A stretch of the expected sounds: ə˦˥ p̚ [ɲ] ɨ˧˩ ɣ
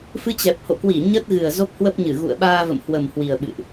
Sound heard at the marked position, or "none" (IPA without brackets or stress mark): ɲ